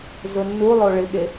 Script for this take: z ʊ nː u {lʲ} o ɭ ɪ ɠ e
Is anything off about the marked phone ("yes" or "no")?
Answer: yes